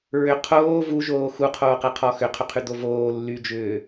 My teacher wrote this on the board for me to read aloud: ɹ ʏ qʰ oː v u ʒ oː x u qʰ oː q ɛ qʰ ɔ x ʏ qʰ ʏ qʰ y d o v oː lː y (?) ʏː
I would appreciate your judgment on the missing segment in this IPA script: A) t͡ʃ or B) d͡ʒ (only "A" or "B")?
B